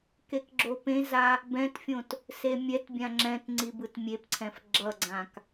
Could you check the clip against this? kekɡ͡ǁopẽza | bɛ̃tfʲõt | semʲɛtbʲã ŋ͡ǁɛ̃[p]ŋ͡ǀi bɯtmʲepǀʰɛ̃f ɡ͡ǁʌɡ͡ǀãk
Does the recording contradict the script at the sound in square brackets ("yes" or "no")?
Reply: yes